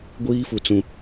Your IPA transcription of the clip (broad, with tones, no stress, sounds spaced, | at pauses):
ɡʷ iː˦ f u˨ t͡s ũ˨